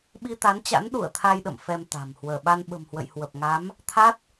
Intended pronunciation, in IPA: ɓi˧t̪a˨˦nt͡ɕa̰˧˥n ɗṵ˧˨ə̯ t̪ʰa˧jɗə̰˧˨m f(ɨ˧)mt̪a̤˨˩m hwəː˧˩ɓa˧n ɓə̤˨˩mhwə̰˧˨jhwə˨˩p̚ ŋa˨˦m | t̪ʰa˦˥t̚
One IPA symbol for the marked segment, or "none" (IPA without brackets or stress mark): ɛ˧